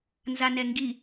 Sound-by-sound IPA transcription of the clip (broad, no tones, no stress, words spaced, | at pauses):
nzanɛŋɡi